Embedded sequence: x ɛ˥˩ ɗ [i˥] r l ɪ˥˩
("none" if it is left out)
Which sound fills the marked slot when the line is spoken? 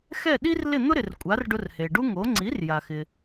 i˥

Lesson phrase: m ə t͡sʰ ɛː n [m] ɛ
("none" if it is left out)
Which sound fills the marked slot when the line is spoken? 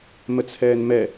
m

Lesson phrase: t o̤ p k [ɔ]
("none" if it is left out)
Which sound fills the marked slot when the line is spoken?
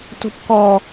ɔ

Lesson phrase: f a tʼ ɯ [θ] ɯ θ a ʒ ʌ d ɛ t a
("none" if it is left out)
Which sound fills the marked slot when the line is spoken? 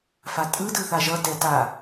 d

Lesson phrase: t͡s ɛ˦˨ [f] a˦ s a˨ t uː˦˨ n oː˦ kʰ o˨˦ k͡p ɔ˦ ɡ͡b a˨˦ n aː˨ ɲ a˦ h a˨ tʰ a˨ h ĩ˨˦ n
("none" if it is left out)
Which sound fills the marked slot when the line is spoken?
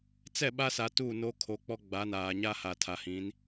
ɓ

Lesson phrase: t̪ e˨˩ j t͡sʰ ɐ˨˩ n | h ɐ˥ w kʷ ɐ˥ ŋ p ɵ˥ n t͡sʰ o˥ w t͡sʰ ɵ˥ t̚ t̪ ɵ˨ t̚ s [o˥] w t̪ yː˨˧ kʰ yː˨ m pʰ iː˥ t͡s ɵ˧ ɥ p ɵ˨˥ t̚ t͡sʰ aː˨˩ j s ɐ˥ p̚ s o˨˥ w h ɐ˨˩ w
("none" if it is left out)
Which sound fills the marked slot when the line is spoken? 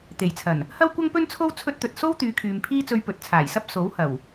o˥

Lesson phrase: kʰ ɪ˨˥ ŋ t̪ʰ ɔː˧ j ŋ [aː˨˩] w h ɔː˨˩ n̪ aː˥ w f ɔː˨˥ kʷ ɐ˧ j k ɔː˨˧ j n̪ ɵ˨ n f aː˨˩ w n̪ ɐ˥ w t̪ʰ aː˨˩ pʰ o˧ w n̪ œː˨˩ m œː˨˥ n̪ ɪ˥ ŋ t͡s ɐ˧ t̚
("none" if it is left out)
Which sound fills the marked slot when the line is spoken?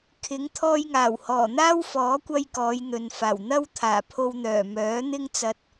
aː˨˩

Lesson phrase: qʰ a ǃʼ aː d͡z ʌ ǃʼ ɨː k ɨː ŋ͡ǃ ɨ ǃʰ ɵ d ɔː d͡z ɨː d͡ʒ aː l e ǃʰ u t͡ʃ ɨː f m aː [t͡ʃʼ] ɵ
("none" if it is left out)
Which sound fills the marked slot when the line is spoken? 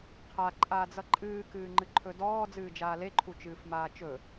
t͡ʃ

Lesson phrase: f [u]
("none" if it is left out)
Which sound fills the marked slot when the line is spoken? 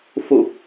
u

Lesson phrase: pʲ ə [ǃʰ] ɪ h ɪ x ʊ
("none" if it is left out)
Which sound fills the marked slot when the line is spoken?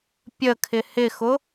kʰ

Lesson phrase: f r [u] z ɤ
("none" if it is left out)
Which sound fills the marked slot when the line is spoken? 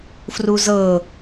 u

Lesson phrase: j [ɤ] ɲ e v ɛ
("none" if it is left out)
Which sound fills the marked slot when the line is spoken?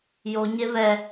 o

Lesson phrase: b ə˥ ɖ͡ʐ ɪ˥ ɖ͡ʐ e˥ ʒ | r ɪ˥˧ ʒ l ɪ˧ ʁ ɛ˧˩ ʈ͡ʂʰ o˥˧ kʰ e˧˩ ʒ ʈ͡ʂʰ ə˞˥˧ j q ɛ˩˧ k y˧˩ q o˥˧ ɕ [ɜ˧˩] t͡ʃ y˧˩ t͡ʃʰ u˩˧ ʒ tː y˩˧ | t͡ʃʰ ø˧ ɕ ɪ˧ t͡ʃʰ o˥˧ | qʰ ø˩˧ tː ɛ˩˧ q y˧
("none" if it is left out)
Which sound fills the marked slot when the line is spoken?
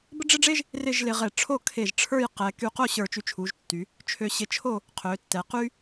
ə˞˧˩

